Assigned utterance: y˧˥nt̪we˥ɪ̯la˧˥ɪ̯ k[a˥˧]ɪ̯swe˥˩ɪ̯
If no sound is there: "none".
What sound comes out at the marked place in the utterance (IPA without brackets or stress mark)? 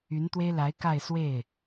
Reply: a˥˧